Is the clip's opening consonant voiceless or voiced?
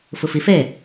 voiceless